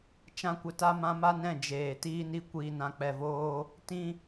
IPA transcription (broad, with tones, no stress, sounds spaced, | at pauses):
t͡ʃ ã˦ kʷ ə˧ t a˦ m ã˧ m a˦ n ɛ̃˦˨ d͡ʒ eː˨ t iː˧ n i˧ kʷ iː˨ n ã˨ k͡p ɛ˨ v oː˧ | t ĩ˦